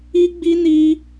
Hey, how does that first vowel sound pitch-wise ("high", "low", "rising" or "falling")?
high